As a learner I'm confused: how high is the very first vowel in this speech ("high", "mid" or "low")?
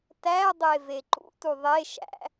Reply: low